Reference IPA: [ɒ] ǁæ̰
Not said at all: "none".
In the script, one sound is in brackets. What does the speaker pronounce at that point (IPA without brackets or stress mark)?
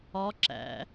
ɒ